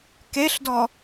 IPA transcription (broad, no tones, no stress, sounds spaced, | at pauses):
k e ɬ d ɔ